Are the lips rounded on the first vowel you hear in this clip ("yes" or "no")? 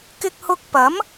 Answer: no